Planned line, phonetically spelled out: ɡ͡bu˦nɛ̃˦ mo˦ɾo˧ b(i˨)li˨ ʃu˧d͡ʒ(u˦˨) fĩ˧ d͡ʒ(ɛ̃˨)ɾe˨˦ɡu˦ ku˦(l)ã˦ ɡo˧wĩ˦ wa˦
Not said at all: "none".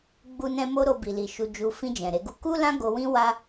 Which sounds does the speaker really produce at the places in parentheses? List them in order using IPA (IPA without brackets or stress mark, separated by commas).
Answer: i˨, u˧, ɛ̃˨, l